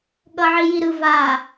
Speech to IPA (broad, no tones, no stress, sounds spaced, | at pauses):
ɠ ʌ ʕ i j i ɾ ɯ v a